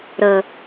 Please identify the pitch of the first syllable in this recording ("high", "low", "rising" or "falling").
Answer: low